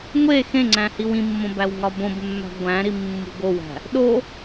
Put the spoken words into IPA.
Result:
ŋʷ e x ẽ ŋ͡ǀ æ̃ h i w ĩ mː õ b æ w ŋ ɒ b õ b mː æ̤ ɡʷ æ̃ ɾ i mː ṳ ɡ o w æ̤ | ɗ o

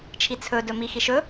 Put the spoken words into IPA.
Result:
t͡ʃʰ i t͡sʰ ɵ d ɵ m i x i ʃ ɵ

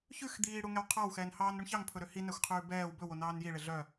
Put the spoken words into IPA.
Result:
ç ʉ x d̪ iː ɽ u ŋ ɛ w qʰ ɑ w x ɛː n h ɑː n ɾ u ɳ ç ɑ ŋ pʰ ɵ ɾ ø h i n æ xʷ qʰ ʉː b ɛː w b ɵ w o n ɑː n j i ɭ e ɮ œ

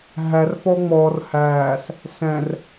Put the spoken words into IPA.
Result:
ɦ æ r f ɔ ŋ͡m ɔ r h æː s | s ɛ̃ r

